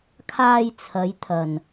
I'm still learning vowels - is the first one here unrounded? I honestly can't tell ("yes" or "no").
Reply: yes